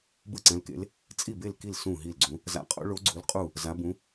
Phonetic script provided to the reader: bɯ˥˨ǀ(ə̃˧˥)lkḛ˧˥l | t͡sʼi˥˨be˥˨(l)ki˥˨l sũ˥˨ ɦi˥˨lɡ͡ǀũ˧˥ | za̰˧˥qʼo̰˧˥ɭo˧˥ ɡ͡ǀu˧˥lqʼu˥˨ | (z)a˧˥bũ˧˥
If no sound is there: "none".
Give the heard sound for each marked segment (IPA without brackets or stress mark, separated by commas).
ɛ̃˧˥, l, z